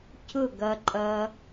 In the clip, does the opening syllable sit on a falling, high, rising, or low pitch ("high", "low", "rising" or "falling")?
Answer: falling